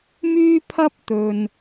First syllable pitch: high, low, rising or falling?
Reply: high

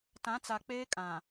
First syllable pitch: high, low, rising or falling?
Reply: rising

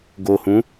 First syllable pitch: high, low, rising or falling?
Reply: low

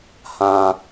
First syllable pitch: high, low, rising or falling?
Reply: high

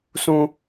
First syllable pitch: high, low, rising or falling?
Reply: high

